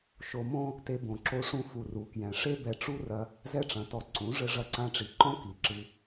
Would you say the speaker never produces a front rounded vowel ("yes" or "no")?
yes